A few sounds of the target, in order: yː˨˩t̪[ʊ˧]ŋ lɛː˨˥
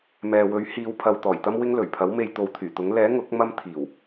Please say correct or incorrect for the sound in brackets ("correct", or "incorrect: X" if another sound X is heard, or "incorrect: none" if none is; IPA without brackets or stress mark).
incorrect: ʊ˨˥